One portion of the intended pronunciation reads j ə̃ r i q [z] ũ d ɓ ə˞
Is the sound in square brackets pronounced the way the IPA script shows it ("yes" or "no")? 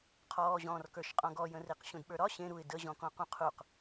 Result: no